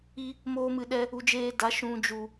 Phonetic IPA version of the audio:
i˧ | moː˦mɨ˧ɗɛ˦ | u˧d͡ʒeː˧da˨˦ ʃũ˨d͡ʒu˨

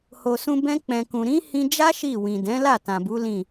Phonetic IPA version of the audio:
ho˨sũ˧ bɛ̃˧k͡pɛ̃˨kũ˨ɾĩ˨˦ hĩ˧d͡ʒa˦ ʃi˦˨ wĩ˨dɛ̃˨˦la˦˨ tã˨bu˨˦lĩ˦˨

